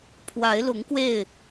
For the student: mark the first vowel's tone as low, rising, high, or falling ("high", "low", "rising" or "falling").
rising